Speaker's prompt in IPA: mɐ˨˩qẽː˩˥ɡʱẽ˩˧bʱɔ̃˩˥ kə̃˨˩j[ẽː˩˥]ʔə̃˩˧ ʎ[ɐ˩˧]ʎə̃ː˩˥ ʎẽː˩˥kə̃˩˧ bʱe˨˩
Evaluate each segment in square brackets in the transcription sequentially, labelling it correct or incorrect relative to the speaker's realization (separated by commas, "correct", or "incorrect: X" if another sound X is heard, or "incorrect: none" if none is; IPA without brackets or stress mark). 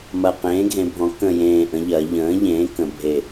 incorrect: ẽː˨˩, correct